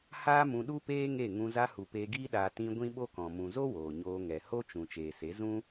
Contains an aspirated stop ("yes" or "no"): no